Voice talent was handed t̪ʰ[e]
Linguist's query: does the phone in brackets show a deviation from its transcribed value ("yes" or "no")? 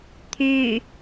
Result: yes